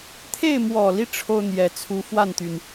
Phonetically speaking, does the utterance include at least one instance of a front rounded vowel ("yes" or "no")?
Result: yes